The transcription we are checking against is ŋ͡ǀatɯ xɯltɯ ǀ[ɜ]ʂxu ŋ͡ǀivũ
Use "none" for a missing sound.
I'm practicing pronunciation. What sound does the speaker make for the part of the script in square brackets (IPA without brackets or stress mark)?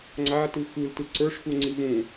ə˞